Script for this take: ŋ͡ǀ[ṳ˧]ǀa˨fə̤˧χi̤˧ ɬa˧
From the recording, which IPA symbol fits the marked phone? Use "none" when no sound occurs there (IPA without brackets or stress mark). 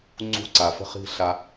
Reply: ṳ˧